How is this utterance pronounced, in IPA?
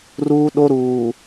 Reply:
r uː˦ ɗ o˦ ɾ uː˨

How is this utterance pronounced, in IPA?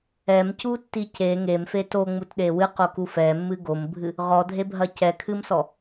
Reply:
ɛ m c u tː i c e ŋ e m f e t o ŋ͡m u t ɗ e w ɨ q o k u f ɛ mː ɨ ɡ o m bʱ ɨ | ʁ ɔ dʱ e bʱ ɐ c ɛ kʰ ɨ m s ɔ

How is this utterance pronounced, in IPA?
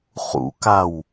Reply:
χ ṵ k a w

